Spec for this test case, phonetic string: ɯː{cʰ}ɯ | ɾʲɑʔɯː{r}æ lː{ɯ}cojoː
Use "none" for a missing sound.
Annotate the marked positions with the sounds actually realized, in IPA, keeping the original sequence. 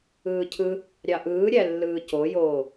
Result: cʰ, ɾʲ, ɯː

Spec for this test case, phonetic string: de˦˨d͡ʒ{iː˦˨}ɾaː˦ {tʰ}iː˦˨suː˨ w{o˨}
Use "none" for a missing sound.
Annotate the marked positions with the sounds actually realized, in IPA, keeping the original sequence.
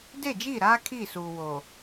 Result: iː˦˨, kʰ, o˨

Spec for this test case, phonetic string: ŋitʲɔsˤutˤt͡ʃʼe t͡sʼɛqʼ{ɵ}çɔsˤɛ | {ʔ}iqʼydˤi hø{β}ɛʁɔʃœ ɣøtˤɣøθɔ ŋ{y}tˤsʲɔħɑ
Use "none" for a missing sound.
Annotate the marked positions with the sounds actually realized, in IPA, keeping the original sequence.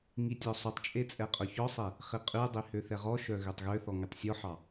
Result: ɵ, χ, θ, y

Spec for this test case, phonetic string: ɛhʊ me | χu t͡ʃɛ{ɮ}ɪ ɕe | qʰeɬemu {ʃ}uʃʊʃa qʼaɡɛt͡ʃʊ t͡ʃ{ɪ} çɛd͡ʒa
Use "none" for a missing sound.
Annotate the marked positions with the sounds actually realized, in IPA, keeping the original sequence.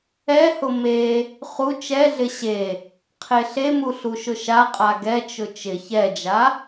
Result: ɮ, ɬ, ɪ

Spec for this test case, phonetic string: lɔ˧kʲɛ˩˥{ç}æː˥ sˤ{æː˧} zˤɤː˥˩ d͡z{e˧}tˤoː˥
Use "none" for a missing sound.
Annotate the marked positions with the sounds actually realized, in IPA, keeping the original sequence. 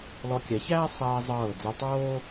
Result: ç, ɛː˧, ɛ˧

